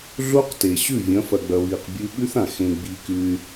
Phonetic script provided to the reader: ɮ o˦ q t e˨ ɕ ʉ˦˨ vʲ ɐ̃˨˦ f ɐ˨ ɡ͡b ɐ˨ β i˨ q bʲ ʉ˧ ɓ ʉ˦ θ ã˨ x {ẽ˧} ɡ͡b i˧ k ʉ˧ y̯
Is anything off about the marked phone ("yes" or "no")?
no